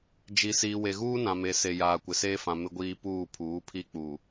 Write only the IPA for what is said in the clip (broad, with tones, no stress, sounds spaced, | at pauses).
d͡ʒ i˨ s iː˨ w e˨ ɣ uː˦ n ã˨ m e˨ s e˨ j aː˨ kʷ ɪ˨ s eː˦ f ã˨ m ɪ˨ ɡʷ iː˨ p uː˦˨ pʰ uː˨˦ pʰ i˦˨ k͡p u˨